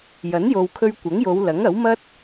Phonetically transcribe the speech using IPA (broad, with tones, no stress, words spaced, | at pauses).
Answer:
jɐ˨˥njo˨wkʰɵ˧ɥ kʷɐ˨˥ŋjo˨˧wlɐ˨˥ŋ ɐ˨˥wmɐ˥t̚